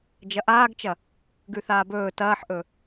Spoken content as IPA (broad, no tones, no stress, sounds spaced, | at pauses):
d͡ʒ ɐ ʔ aː ɡ t͡ʃ ɐ | ɡ ʉ θ aː b ɵː t ɐː ħ ʔ ɵ